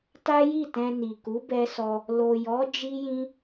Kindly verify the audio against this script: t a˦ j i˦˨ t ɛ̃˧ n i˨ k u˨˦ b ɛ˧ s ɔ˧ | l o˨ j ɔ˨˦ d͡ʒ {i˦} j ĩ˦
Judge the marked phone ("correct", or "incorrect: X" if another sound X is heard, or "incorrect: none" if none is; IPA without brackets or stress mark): correct